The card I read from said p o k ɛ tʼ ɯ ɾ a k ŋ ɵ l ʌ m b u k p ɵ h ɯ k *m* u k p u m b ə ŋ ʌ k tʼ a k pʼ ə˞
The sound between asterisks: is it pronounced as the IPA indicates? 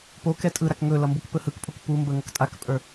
no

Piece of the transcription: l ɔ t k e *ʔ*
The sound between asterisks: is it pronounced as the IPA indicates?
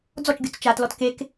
no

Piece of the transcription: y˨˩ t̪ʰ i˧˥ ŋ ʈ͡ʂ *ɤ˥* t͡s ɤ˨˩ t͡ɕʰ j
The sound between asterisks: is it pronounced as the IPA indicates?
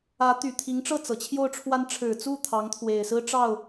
no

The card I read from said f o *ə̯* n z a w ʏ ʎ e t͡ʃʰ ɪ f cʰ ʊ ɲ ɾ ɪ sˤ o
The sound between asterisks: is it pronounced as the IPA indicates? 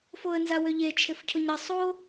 yes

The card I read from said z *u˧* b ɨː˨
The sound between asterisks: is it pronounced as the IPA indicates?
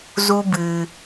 yes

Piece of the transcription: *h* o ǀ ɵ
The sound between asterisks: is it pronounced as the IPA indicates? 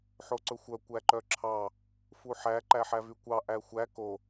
no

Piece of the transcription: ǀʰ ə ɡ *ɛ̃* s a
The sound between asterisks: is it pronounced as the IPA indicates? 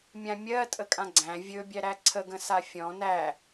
no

